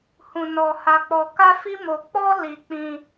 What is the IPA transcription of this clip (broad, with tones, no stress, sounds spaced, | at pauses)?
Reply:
h ũ˧ n ɔ˧ h a˧ k͡p ɔ˧ k a˦ f i˦ m o˧ k͡p ɔ˦ l i˧ k͡p ĩ˧